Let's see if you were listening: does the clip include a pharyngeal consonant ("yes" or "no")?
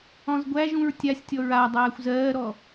no